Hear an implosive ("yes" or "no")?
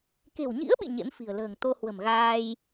yes